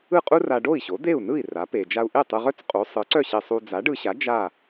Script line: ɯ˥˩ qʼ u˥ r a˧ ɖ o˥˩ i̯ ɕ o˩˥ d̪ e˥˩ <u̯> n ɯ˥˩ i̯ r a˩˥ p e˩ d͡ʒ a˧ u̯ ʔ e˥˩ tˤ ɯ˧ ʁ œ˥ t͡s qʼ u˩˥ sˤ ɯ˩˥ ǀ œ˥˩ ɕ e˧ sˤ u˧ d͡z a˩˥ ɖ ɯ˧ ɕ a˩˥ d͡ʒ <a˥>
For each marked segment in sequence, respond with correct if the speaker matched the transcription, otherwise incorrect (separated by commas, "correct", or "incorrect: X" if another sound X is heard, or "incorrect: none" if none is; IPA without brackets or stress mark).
correct, incorrect: a˥˩